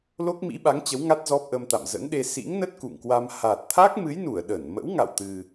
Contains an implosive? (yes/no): yes